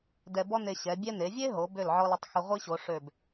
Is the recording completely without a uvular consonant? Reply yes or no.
no